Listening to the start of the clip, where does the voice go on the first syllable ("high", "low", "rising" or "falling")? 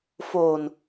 low